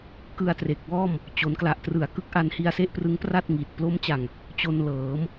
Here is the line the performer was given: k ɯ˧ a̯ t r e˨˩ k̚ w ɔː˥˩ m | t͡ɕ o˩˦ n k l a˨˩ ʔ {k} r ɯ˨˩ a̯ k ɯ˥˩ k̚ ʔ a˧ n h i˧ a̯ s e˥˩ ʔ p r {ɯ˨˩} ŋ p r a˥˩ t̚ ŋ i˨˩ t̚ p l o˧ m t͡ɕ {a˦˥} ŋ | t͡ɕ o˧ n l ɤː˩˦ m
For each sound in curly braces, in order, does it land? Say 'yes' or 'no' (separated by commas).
no, no, no